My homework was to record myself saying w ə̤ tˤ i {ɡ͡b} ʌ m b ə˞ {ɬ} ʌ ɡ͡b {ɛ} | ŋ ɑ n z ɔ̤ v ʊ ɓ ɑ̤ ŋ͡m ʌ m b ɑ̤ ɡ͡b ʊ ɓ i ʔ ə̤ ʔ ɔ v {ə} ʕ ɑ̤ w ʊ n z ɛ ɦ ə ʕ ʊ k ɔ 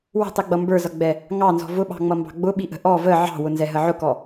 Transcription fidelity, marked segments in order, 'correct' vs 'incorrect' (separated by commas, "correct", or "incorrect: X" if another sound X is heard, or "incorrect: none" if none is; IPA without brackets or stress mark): correct, incorrect: z, correct, correct